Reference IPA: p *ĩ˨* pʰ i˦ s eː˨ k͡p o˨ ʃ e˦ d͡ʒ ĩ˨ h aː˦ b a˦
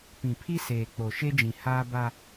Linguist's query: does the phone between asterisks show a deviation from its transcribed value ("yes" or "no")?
no